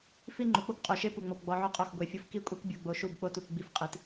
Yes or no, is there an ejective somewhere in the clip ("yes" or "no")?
yes